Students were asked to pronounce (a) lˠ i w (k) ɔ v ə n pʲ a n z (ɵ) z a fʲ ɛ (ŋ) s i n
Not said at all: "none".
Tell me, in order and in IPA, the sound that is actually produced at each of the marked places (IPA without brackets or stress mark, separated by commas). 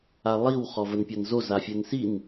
a, χ, o, n